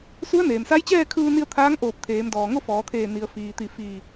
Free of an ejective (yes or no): yes